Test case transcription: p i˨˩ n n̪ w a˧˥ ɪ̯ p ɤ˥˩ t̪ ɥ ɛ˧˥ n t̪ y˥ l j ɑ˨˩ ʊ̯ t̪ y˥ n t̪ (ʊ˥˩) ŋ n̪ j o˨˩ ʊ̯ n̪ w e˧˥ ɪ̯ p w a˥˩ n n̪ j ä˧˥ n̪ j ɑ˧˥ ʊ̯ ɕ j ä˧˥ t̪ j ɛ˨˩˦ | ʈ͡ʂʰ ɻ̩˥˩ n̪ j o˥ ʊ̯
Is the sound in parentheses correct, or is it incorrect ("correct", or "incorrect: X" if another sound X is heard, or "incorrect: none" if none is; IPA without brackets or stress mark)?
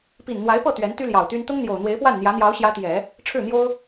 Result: incorrect: ʊ˥